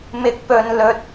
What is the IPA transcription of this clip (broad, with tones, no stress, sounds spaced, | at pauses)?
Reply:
m ɪ˨˥ k̚ p ɵ˨ n l ɵ˧ t̚